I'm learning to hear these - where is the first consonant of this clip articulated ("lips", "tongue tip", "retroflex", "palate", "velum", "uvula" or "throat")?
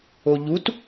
palate